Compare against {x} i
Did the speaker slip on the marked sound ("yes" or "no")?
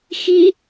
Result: no